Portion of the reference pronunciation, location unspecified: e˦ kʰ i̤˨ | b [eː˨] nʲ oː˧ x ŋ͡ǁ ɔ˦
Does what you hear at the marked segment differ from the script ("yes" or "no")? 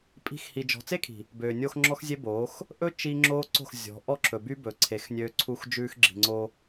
yes